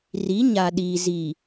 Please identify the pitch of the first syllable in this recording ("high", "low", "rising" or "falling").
rising